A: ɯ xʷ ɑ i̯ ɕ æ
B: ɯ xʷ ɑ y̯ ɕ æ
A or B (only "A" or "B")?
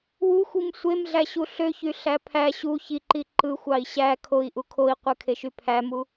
A